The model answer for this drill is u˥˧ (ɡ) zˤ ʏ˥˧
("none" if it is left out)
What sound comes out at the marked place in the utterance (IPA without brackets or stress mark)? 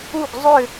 ɡ